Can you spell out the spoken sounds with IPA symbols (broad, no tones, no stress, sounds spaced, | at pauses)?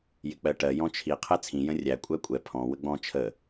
j ɪ k͡p ɜ ʈ ɜ j ɔ̃ t͡ʃʰ i qʰ ɛ t͡sʰ ĩ j ə̃ rʲ æ kʷʼ æ kʷʼ ɛ pʰ ɔ̃ w ə ɡ͡b ɔ̃ t͡ʃʰ ə